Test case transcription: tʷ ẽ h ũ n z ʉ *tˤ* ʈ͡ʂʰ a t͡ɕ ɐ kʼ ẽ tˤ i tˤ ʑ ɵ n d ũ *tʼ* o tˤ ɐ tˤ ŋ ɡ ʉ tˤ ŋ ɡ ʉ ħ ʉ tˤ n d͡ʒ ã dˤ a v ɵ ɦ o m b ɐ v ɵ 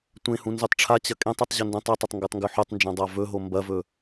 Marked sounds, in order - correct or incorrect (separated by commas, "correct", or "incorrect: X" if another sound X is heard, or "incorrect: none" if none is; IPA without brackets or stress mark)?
correct, incorrect: tˤ